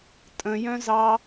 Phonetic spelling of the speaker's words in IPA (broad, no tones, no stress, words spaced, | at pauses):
tʼə̃jœ̃zɑ